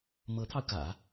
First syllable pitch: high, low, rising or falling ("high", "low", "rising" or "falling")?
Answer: rising